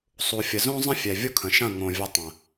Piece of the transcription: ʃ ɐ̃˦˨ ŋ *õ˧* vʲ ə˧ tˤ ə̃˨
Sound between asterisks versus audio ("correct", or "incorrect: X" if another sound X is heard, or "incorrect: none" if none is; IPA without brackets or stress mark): incorrect: õ˨